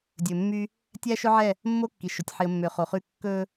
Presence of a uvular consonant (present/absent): present